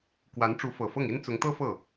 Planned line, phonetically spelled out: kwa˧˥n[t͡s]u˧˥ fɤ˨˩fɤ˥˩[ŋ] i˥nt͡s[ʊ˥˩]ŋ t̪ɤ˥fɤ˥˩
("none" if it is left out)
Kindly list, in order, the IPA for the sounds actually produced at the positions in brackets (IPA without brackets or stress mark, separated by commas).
ʈ͡ʂ, ŋ, ʊ˧˥